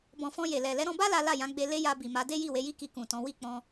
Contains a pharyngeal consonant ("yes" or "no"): no